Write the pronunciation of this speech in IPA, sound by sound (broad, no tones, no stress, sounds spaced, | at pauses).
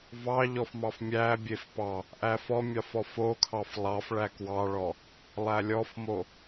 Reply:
v ɑ ʎ ɔ f m ɑ f mʲ æ bʲ e f p ɑ | ʔ æ f ɔ mʲ ɑ f ɔ f o kʰ ɑ f lˠ ɑ f ɭ æ k w ɑ ɭ ɔ | lˠ æ lʲ ɔ f m o